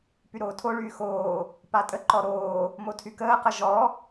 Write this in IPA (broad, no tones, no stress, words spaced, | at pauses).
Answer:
pyɾoːtʰoɭyː xoː | patʼəǃɔ ɾoː | motʰykəːqə ʒɔ